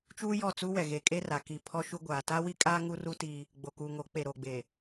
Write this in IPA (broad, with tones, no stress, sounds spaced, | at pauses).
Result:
t͡ʃ uː˦ j ɔ˦˨ t͡s u˦ w ɛ˨ ɣ e˨ kʼ e˦ r a˨ k i˨ pʰ ɔ˦ ʃ u˦ ɡʷ aː˨ t a˦ w i˦ kʼ aː˦ ŋ u˦ r u˦ t i˦ | ɡ͡b o˨ k uː˨ ŋ o˨˦ k͡p e˨ ɾ o˨ ɡ͡b e˨